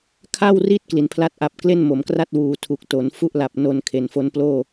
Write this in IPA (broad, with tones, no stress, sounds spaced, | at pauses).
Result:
kʰ a˥˩ w r i˦˥ t̚ k l i˩˦ n pʰ l a˥˩ t̚ ʔ a˨˩ p̚ k l e˥˩ n m o˩˦ m k r a˥˩ t̚ w uː˨˩ tʰ u˨˩ k̚ t o˩˦ n f u˥˩ ʔ l a˨˩ p̚ n o˧ n kʰ e˨˩ n f o˦˥ n p l oː˥˩